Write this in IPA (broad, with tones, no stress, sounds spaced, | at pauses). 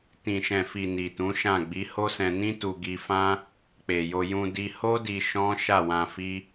t ĩ˨ ʃ ɛ̃˨ f i˨ n i˨ t ũ˨˦ ʃ ã˦˨ ɡ͡b i˨˦ h o˦ s ɛ̃˧ n ĩ˦ t u˧ ɡ i˧ f ã˦ | k͡p e˨ j o˧ j ũ˧ d i˧ h o˦ d i˧ ʃ ɔ̃˦ ʃ a˦˨ w ã˧ f i˦